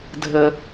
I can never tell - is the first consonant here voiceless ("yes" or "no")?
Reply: no